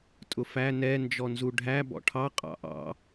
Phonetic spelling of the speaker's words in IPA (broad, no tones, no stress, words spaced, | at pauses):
tʼʊfæ nɛ nd͡ʒɔnzuɖʱæ bɔ̰ʈʰɑ qʼɑ̰ʔɑ̰